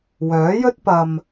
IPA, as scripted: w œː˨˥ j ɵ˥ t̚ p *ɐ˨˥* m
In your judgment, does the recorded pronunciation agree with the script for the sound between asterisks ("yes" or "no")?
no